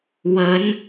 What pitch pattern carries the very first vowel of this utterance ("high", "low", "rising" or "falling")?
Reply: rising